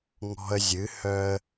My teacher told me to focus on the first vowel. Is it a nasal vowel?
no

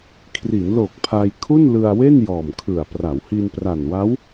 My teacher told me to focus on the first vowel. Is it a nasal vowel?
no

